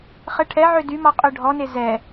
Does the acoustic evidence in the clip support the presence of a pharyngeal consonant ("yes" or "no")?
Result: yes